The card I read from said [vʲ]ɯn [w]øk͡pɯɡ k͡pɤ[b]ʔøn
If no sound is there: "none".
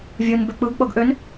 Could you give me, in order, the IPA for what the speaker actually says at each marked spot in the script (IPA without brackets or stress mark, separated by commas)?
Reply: vʲ, b, ɡ